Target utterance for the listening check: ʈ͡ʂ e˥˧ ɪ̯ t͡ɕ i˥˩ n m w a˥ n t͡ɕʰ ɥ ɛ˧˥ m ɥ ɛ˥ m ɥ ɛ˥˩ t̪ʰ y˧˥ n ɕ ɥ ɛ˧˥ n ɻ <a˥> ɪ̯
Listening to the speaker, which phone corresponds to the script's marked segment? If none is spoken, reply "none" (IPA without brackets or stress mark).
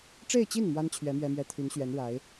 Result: a˧˥